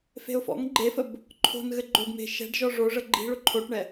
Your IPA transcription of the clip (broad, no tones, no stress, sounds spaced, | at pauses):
f e̤ ʊ̯ f ɔ̰ ŋ ɡ͡ǃ e f ə b | ǃʰ o̤ n ɣ ɘ ɡ͡ǃ o ɡ m e̤ ʃ ɛ̤ ɖ ʒ ɔ ʐ o ʐ ə ɡ͡ǃ i̤ ɭ ʊ ǃʰ o ʈ ɳ ɛ